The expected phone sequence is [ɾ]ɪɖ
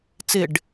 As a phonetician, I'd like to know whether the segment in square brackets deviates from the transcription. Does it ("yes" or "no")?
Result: yes